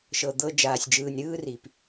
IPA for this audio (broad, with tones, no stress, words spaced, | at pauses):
ʃɤ˨d̪ɤ˦ d͡ʒaː˨sʲd͡ʒɯː˨nʲɾɯː˥ri˩p